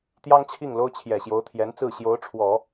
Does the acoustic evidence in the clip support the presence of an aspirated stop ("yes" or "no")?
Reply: yes